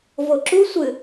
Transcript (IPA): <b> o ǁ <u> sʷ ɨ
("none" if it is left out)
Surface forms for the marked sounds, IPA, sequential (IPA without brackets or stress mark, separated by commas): v, u